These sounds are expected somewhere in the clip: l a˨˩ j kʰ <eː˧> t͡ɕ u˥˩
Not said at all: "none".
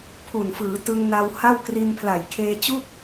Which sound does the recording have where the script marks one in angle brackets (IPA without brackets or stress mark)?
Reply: eː˧